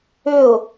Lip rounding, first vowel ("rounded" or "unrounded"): rounded